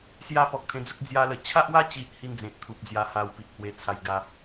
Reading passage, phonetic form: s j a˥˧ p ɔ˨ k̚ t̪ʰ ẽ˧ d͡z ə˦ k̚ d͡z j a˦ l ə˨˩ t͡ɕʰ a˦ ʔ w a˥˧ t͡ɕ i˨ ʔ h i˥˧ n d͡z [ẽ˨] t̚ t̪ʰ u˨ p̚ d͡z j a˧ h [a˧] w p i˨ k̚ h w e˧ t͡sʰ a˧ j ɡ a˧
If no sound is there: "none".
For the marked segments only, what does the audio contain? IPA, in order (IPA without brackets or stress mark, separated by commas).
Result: ẽ˨, a˧